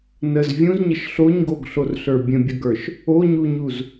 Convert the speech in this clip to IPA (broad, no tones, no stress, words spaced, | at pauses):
nəz vʲũzɲəʃ ɬoɲɡoɡɬorɬə˞ bʲə̃bʲəɡə˞ʃ | oɲuɲuz